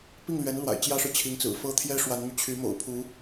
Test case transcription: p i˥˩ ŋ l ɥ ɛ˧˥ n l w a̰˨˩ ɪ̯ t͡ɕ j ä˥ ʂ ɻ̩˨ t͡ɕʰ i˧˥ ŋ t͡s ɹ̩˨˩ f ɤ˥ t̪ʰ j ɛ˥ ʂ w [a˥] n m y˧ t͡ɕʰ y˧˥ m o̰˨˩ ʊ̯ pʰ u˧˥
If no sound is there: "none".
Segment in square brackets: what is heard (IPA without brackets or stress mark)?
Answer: a˧˥